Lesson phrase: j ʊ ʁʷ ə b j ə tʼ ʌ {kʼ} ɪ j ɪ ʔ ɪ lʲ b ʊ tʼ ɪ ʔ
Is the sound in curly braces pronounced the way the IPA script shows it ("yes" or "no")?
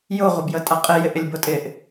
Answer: no